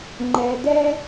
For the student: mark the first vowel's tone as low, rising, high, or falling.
low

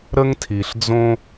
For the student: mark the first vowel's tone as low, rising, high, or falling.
high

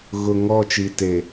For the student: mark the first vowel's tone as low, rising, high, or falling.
low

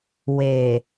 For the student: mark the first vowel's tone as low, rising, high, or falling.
low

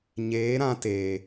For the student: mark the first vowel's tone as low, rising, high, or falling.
rising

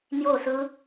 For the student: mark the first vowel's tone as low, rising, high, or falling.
falling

